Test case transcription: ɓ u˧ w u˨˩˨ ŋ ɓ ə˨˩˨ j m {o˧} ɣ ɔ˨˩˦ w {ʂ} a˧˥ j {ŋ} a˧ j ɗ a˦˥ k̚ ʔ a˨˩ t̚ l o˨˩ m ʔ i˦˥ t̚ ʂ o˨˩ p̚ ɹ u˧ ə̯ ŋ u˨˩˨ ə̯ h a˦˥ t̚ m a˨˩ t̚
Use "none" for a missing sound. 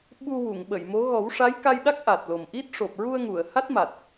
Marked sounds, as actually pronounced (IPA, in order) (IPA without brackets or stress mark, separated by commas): o˧˥, ʂ, k